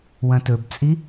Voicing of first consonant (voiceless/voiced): voiced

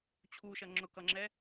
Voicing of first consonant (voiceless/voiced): voiceless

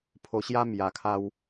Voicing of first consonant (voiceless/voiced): voiceless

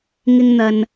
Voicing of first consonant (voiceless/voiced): voiced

